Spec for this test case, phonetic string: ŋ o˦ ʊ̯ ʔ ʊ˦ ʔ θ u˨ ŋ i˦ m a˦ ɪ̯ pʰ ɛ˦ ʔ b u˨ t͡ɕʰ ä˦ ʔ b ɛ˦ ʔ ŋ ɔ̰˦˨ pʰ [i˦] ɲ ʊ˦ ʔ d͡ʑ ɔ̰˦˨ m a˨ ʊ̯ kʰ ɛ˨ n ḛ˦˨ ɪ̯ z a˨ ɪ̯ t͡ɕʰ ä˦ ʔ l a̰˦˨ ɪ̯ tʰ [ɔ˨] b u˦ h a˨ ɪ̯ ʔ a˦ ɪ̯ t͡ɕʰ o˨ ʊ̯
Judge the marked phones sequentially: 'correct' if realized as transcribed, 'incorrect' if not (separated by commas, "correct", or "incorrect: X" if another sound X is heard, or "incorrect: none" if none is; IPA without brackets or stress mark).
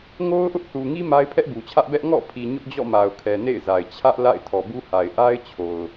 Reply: incorrect: i˨, correct